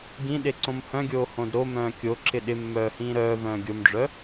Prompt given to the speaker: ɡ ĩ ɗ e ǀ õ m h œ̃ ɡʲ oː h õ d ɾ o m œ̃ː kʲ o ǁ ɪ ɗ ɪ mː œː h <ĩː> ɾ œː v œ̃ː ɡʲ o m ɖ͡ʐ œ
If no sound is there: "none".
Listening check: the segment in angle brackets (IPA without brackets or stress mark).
ĩː